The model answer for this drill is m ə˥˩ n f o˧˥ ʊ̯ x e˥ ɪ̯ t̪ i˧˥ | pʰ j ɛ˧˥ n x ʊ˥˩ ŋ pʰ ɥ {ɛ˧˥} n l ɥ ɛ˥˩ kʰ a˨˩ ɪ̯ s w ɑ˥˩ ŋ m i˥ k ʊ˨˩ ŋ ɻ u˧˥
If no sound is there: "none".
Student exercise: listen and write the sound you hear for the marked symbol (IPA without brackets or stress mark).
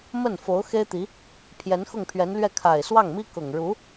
ɛ˧˥